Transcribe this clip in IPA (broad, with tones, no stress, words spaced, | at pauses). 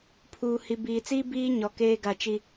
pʰuː˨hi˨ biː˨t͡siː˦ biː˦ ɲɔ˨ keː˦ɡa˦˨ t͡ʃi˦